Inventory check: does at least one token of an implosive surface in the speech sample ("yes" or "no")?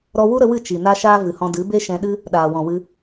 yes